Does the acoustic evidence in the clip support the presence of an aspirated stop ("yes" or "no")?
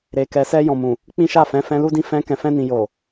no